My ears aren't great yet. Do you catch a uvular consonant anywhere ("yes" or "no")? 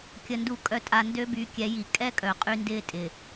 yes